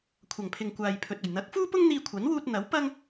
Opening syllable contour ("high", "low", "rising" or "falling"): low